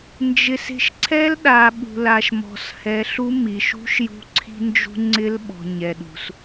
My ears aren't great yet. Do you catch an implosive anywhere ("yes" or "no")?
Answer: yes